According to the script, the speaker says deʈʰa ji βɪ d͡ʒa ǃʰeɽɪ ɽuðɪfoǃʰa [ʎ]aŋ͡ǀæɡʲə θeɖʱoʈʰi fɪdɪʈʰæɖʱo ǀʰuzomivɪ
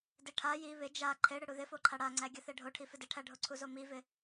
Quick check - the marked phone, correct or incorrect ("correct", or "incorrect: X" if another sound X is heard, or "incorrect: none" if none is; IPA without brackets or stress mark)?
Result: incorrect: ɽ